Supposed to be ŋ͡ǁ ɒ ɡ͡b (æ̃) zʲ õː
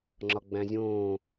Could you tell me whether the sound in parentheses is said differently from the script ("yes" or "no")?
no